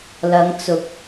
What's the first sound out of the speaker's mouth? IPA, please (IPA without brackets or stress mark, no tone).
l